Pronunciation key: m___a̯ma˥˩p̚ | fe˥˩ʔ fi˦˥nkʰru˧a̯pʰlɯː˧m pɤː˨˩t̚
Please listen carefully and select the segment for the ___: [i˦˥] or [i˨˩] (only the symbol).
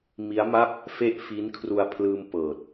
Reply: i˦˥